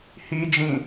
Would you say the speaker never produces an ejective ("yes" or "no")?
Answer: yes